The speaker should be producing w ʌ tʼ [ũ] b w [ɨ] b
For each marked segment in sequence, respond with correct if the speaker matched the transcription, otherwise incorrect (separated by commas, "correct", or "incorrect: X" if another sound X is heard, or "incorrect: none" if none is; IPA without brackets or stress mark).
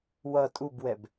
incorrect: u, incorrect: ɛ